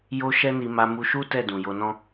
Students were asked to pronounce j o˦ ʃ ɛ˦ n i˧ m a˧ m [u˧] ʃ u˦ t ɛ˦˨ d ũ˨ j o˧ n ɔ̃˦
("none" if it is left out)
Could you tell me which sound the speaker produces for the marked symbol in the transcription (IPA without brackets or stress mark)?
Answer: u˧